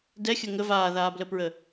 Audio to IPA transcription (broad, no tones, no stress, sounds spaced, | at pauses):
d ɛ xʲ ə ŋ ə v aː ð aː b l ə p ɹ ə